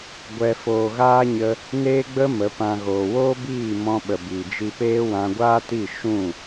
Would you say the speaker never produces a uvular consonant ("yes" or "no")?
yes